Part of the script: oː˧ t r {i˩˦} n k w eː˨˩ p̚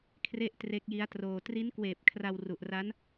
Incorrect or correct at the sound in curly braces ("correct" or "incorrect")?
incorrect